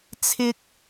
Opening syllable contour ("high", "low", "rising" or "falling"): high